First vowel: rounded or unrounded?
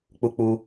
rounded